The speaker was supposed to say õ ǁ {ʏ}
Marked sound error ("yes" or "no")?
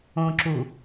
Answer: yes